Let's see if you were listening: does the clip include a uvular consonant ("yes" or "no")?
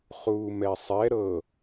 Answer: yes